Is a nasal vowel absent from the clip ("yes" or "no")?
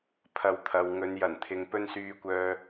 yes